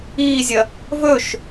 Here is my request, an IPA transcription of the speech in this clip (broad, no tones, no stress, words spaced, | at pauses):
iːzʲɐ | vɵʃ